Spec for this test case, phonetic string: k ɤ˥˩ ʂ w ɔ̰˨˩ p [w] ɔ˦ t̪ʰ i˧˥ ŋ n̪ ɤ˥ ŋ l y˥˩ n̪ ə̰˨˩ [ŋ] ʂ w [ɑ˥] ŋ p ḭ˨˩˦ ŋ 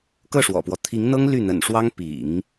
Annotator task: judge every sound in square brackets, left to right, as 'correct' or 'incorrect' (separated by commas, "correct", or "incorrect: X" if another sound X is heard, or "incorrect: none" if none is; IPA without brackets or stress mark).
correct, incorrect: n, correct